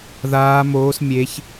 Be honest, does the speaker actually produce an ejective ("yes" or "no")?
no